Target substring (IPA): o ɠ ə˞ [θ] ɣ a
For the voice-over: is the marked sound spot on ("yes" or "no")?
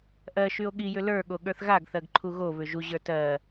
yes